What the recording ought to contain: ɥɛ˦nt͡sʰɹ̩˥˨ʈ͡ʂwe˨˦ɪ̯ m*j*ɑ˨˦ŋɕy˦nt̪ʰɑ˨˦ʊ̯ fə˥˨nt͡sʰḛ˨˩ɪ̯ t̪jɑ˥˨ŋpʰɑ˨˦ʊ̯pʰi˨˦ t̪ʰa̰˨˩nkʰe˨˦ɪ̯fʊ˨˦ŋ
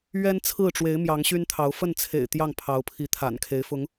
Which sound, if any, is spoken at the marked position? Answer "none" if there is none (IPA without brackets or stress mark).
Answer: j